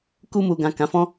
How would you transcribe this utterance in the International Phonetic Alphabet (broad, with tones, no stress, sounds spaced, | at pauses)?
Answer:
k u˧ m u˨ ɡ ã˨ k ã˨˦ f ɔ̃˦